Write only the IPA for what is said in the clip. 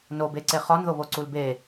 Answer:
n o b e ǀ e χ ɒ n ð o β o ǀ u l b e

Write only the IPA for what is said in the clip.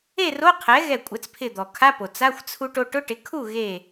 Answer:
e˥˨ r o˧˥˧ qʰ ɛ˩˥ ɣ ɛ˧˩ kʷʼ ɛ˩˥ t͡s pʰ ɪ˧˩ d̪ ɔ˩ kʰ a˧˥˧ p o˩ t͡s a˧˥˧ xʷ t͡sʰ u˧ ʈ o˧ ʈ ʊ˧˥˧ ʈ ɪ˩˥ kʰ u˥˨ ɣ e˧˩

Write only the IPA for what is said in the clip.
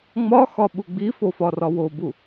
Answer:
ŋ͡m ɒ x ɒ ɓ u ɡ͡b i f o f ɒ r ɒ w o b u

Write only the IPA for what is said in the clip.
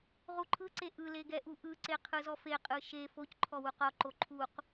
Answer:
ʁ u ǃʰ ɯ ǀ e ʔ ɯ l e ɡ ɛ ʔ u ʔ ɯ ǀ e qʰ ɯ z ɔ f e qʼ ɯ ʃ e f o c ǃʰ ɔ w u q ɔ ǃ o ǃʰ u q

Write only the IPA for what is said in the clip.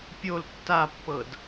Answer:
pʲ o l tː a pː ɤ d

